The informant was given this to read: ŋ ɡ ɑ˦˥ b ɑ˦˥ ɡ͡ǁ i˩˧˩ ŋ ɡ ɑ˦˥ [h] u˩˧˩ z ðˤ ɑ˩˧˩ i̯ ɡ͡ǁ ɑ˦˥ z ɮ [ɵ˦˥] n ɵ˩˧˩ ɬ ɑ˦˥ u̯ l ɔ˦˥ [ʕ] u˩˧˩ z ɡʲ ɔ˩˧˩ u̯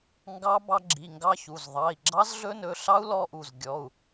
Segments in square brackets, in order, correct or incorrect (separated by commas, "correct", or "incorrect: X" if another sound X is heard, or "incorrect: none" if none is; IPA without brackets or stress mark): incorrect: ç, correct, incorrect: ʔ